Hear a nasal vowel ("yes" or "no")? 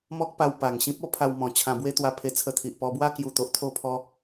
yes